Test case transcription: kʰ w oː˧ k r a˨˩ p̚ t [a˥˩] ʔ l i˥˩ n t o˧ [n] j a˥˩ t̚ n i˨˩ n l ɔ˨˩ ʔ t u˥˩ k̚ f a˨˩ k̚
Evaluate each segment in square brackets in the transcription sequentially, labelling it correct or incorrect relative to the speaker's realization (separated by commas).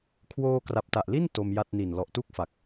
incorrect, incorrect